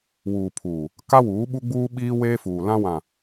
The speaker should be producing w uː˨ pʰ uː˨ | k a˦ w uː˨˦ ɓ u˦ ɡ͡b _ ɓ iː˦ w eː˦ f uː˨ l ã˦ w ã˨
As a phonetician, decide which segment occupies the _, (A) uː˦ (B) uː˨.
A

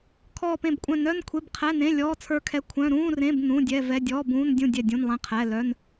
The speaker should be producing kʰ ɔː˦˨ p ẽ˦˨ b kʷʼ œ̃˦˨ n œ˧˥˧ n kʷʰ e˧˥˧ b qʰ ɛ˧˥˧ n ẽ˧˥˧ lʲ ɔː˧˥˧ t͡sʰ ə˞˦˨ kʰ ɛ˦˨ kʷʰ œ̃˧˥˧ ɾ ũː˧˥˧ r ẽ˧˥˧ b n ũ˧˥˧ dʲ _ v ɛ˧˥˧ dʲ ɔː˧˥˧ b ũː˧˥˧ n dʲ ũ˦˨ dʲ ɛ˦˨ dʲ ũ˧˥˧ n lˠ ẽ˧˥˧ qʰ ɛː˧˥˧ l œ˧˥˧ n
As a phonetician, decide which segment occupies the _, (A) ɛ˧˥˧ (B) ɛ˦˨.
A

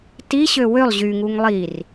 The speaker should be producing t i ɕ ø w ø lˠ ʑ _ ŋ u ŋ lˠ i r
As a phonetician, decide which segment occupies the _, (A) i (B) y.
B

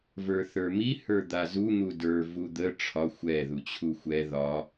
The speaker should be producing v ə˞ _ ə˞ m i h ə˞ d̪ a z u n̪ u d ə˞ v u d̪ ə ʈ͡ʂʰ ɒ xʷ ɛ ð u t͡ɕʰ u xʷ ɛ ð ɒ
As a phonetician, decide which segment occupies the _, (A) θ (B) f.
A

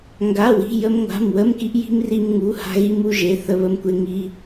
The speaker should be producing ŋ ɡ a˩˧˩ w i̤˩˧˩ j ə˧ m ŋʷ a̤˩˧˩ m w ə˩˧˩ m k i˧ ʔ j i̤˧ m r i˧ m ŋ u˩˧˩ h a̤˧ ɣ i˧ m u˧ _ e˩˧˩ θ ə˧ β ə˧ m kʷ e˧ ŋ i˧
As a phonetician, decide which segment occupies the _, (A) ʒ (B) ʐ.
A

